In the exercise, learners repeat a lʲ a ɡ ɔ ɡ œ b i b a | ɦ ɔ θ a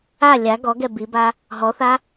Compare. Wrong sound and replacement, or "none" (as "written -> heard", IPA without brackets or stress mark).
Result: œ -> ɛ